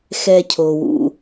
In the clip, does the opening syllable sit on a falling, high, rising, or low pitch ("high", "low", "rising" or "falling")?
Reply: high